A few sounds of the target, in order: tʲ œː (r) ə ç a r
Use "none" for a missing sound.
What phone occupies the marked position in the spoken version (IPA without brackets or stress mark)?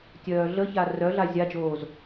ɮ